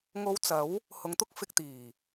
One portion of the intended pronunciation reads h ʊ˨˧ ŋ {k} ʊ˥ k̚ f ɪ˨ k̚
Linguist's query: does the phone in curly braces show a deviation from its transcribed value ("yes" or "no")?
yes